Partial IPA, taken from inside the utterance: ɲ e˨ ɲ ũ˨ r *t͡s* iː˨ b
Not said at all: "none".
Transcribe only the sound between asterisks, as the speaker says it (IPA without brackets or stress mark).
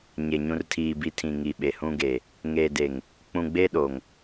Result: tʰ